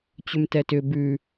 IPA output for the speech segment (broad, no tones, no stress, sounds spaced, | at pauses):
t͡ɕ ʏ m t ɛ t ʏ b ʉ